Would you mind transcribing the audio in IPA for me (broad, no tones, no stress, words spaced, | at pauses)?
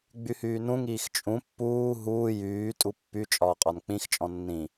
ɡ͡byhyːnũŋ iːxt͡ʃʼũ pːuː ɦuː jyː tʼupːy t͡ʃʼɒːqʼɒnk͡pĩx t͡ʃʼɔ̃nːĩ